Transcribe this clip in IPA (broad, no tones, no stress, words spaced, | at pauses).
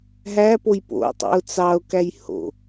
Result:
ɦæpoj po̰tˤḛʊ̯ t͡sɑʊ̯kæj ho̰